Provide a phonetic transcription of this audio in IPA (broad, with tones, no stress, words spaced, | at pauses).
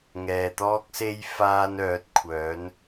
ŋɛː˨t̪ɔː˥k̚se˥j faː˥n œː˨˥t̚kʷʰœː˨˥n